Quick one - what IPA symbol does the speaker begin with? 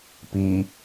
p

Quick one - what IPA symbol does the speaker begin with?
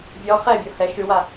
vʲ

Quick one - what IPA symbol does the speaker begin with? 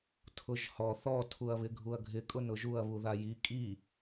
tʰ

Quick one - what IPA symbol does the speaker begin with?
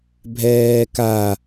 bʱ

